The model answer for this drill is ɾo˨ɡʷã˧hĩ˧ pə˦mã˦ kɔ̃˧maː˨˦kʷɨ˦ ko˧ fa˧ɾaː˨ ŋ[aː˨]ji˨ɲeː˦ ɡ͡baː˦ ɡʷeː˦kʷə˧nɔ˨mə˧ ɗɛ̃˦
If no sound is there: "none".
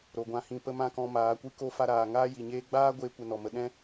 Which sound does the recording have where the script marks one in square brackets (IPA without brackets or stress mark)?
aː˦